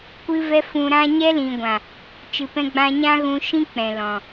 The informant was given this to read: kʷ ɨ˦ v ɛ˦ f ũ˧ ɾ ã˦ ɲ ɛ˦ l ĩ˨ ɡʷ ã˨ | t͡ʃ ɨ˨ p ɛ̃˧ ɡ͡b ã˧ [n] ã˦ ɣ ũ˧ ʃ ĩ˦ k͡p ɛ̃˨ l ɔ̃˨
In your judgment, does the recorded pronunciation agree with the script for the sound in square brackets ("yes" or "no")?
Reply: no